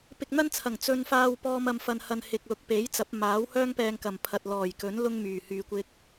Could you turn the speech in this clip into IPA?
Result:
p ɪ˧ k̚ n̪ ɐ˥ n t͡sʰ ɐ˨˩ ŋ t͡s ɵ˧ n f aː˧ w p ɔː˧ m ɐ˨ m f ɐ˨ n h ɐ˨ n h ɪ˨ k̚ l ʊ˨˥ k̚ p e˨˥ j t͡s ɐ˨˥ p̚ m aː˨˥ w h œː˥ ŋ p ɛː˧ ŋ k ɐ˨˩ m pʰ ɐ˨ t̚ l ɔː˨˩ j k ɵ˨˥ n l ʊ˧ ŋ m yː˨˩ h yː˨ kʷ ɪ˧ k̚

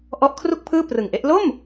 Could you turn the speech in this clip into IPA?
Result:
ʔ ɔ˦˥ ʔ kʰ r u˥˩ k̚ pʰ ɯː˥˩ p r ɯ˨˩ ŋ ʔ e˦˥ ʔ l o˥˩ m

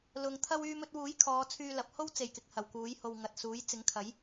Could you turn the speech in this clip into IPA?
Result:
l ʊ˨ ŋ t̪ʰ ɐ˧ w yː˧ m ɵ˧ t̚ w uː˨˥ j kʰ ɔː˨˧ t͡sʰ yː˧ l ɐ˨˥ p̚ h o˥ w t͡s e˨˩ j k ɪ˨ k̚ h ɐ˨˩ w k uː˨˥ j h o˨ w ŋ ɐ˨ t̚ s uː˨˥ j t͡s ɪ˨˥ ŋ kʰ ɐ˨˥ j

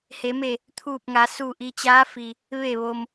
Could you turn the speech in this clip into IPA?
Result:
h e˩˧ m e˧˩ | t̪ʰ uː˧˩ p̚ ŋ a˩˧ s u˧˩ ʔ i˧ t͡ɕ aː˧˥ f i˩ | ʋ e˧˩ ʋ o˩ m

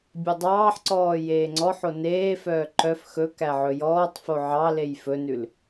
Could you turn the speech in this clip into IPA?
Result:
bʲ ɛ dˤ ɑː ħ ǀ ɔː j eː ŋ͡ǀ ɔ ħ o n eː f œː ǃ œ f x ɵ k æ ʕ ɵ j ɔː tˤ f o ʕ ɑ l e j f ɵ n ʉ l

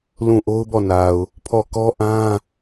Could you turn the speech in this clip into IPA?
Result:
l ũ˦˨ ʔ o˦ ʊ̯ b ɔ˦˨ n a˨ ʊ̯ | pʰ ɔ˦˨ k ɔ˦ ʔ ã˦

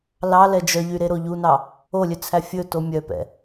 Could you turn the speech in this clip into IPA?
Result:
l ɑ l ɛ d͡ʒ œ ʎ y ɾ e ɾ o ʎ u n ɑ | o lʲ ø t͡sʰ æ fʲ ɵ t o mʲ œ p ɛ̰

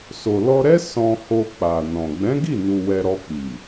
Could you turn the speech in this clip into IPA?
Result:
s o˨ l ɔ˧ ɾ ɛ˦ s ɔ̃˧ h o˧ k͡p a˨ n ɔ̃˨ ɡ͡b ɛ̃˨˦ ɡ i˦˨ n u˨ w ɛ˧ ɾ ɔ˧ k͡p i˨

